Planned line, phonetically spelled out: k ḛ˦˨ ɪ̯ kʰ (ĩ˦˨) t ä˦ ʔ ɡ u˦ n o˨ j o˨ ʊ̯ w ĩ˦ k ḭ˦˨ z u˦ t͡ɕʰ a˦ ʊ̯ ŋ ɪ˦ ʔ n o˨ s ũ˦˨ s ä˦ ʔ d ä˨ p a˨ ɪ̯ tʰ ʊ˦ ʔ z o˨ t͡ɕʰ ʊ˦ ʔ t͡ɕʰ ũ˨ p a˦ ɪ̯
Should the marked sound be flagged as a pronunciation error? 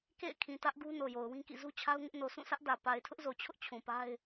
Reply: yes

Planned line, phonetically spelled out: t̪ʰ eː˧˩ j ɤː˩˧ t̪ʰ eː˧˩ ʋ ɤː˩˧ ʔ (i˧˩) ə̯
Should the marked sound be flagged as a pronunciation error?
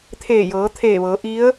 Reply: yes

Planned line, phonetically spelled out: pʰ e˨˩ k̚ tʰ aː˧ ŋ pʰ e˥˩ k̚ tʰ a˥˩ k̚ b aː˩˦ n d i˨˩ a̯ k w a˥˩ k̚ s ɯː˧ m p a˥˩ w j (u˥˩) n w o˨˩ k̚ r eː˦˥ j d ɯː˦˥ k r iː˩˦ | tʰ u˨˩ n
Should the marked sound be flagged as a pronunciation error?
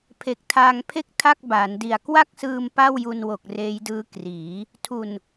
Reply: yes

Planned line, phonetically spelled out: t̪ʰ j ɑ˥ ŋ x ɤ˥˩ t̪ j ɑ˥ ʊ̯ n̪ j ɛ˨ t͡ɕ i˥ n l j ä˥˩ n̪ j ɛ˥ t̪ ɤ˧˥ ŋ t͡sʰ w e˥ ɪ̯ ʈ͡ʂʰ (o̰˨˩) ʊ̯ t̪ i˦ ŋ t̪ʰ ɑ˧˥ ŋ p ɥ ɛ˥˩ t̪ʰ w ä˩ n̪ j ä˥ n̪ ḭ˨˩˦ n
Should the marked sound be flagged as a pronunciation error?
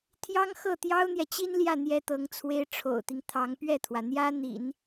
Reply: no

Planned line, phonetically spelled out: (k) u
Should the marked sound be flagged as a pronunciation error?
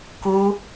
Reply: no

